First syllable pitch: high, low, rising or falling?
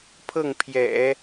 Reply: falling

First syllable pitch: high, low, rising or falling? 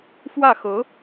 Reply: falling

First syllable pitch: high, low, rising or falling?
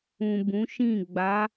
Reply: low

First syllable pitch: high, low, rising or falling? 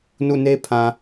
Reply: falling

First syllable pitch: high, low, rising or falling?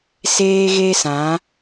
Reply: high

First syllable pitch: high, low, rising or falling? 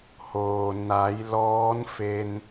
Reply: low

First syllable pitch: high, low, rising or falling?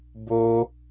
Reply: high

